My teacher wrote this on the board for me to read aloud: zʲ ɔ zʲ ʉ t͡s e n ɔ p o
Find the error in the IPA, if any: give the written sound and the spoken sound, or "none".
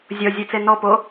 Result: none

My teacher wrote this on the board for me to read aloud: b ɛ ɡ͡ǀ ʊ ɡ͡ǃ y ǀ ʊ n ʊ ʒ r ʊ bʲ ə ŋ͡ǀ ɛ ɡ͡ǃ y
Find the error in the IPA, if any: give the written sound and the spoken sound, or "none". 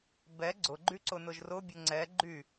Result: ə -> ʊ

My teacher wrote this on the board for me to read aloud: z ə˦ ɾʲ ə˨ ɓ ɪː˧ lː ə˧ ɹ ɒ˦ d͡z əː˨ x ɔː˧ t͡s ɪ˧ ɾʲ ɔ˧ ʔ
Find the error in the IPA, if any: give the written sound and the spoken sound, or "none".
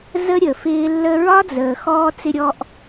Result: ɓ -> f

